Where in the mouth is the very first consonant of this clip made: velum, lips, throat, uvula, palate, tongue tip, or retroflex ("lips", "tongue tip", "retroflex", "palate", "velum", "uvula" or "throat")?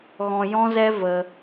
velum